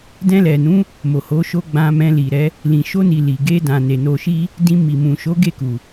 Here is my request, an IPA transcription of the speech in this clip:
d ɛ̃˧ l ɛ˨ n ũ˨˦ | m o˨ h o˨˦ ʃ o˧ ɡ͡b ã˧ m ɛ̃˧ l i˨ ɾ ɛ˨˦ | l ĩ˨ ʃ o˧ n i˨ l i˨ ɡ e˧ d ã˨ n e˨ n o˨ ʃ i˧ | d ĩ˧ m i˨ m ũ˨ ʃ o˨˦ ɡ e˦˨ k u˨

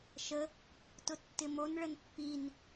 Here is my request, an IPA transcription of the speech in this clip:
ʃ ə | t ʊ tː ɪ m o n ɭ ə n pː i n

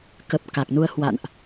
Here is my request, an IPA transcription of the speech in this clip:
k ə˨˩ p̚ k a˨˩ k̚ n u˧ ə̯ h w a̰˧˨ n ʔ

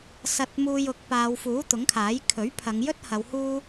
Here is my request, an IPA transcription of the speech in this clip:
s ɐ˧ t̚ m uː˧ j ʊ˨˥ k̚ p aː˨˧ w f uː˨˥ t̪ ʊ˨˥ ŋ kʰ aː˨˥ j kʰ ɵ˨˥ ɥ pʰ ɐ˨˧ ŋ j ɵ˥ t̚ h ɐ˨˧ w h uː˧

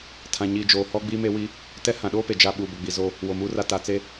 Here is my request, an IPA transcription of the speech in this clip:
tʰ ã˨ ɲ iː˨ d͡ʒ oː˨ h ɔ˦ ɡ͡b iː˦ m e˦ w i˦ | t ɛ˦ h ã˨ ɗ oː˦ p e˨ d͡ʒ a˨ ɓ uː˨ b ʊ˨ ɡ͡b i˨ z o˦ | w o˨ m uː˦ r a˦ t a˨ t͡s e˦

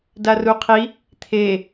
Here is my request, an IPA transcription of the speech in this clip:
d a r u qʰ i | t̪ʰ e

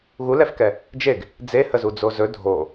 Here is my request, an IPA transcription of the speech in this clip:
ɣ u l ɛ f k ɛ | d͡ʒ e ɡ | d͡z e h ə z u d͡z o z ɵ dʱ o

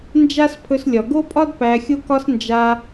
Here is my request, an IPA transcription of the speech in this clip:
n d͡ʒ a˦ s pʰ ɵ˧ s lʲ ɒ˨ ɡ o˦ pʼ ɒ˦ d p æ˧ xʲ o˦ k ɒ˦ s n d͡ʒ a˧

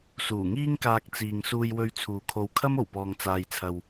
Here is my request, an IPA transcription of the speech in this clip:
s uː˨˩ ŋ iː˥ ŋ k aː˧ k̚ t͡s iː˨ ŋ s uː˧ j w ɵ˧ ɥ t͡sʰ uː˨ kʰ o˧ w kʰ ɐ˥ m o˨˩ w p ɔː˨ ŋ t͡s aː˨ j t͡sʰ ɐ˨ w

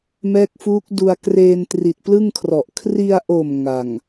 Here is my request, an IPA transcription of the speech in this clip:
m ɛː˦˥ k̚ f uː˦˥ k̚ d u˧ a̯ k r eː˧ n t r i˨˩ t̚ p l ɯ˥˩ ŋ kʰ r ɔ˨˩ ʔ kʰ r i˧ a̯ ʔ o˨˩ m ŋ a˨˩ ŋ

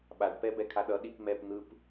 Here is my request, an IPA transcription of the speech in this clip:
ɓ a ɖ p ɛ b ɛ kʰ a ɗ ʌ ɗ i p m ɛ p n̪ ɯ p

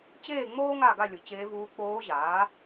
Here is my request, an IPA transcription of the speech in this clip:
t͡ɕ eː˥˨ ŋ͡m oː˥ ŋ a˥˨ ɡ a˥˨ lʲ ʊ˩˥ t͡ɕ eː˧˥ v uː˧˥ k͡p oː˧˥ ʑ aː˩˥

